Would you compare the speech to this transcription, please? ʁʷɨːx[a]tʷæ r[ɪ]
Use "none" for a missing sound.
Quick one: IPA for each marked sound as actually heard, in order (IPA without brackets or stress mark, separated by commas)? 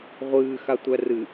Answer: a, ɨ